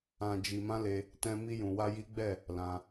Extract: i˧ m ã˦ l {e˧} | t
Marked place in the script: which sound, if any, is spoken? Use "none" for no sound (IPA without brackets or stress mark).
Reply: e˧